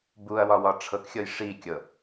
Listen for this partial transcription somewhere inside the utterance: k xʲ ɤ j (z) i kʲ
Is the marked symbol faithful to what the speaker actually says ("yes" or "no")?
no